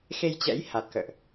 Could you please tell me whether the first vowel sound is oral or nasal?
oral